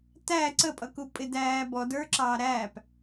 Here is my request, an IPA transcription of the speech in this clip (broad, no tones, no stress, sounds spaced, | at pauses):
t æ ǀ ə pʼ ʌ k u pʼ ɪ d æː b ɔ d ə˞ ǁ ɑː ɾ æː p